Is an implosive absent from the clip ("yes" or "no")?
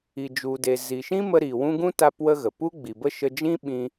no